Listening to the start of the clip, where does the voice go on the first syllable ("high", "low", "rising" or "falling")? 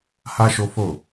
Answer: high